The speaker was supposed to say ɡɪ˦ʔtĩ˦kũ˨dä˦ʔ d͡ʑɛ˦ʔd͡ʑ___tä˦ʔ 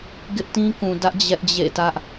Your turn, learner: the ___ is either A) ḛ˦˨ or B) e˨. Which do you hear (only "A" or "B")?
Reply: A